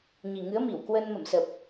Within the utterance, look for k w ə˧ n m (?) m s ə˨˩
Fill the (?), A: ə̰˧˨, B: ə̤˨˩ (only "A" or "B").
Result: A